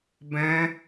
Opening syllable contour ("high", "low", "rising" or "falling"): high